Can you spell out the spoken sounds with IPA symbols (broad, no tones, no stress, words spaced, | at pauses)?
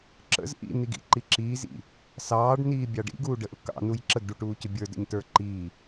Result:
ǁə̰z ʔḭn̪iɡḭǃi ǁiːzḭ | sɑːɖniːbʲɑ ɖḭɡuːɖəʔʊ kɑ̰nuj ǁəɡɖuʈuːcʊ bʲə˞də̰ɲtə˞ ǃi